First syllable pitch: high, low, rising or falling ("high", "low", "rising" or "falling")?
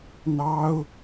high